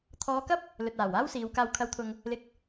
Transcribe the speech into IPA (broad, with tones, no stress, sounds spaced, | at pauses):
t̪ʰ ɔː˨˧ k ɐ˥ p̚ | l ɵ˨ t̚ aː˨˩ w aː˥ w s iː˨˧ w k aː˨ w kʰ ɐ˨˧ w t̪ʰ ʊ˨ ŋ | l ɪ˧ k̚